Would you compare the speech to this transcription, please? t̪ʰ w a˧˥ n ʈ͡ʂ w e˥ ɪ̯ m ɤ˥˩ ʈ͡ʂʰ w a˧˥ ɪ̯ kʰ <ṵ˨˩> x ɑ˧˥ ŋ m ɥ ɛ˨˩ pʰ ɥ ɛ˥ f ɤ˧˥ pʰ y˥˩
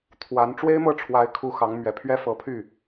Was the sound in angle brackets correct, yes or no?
no